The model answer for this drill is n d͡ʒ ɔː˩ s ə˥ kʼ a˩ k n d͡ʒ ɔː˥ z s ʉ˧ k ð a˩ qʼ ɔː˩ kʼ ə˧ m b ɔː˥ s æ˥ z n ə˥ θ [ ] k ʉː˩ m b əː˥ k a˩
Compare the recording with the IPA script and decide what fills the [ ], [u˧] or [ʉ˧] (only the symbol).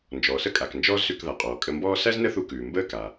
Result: u˧